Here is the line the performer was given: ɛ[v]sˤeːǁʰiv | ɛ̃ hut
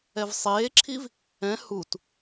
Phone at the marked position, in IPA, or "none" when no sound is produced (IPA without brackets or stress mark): v